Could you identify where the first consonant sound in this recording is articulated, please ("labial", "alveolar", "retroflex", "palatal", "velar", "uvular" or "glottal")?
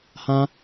glottal